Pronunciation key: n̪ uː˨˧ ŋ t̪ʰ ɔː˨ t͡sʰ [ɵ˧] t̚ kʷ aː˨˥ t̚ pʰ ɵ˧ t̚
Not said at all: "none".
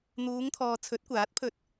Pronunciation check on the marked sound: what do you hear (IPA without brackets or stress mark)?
ɵ˨˥